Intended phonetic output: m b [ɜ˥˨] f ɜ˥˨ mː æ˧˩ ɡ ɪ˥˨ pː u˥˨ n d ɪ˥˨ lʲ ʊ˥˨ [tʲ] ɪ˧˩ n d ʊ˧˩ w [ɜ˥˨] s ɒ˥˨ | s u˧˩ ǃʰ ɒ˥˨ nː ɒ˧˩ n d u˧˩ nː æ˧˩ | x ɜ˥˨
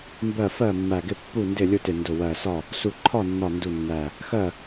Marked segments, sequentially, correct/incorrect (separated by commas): correct, incorrect, incorrect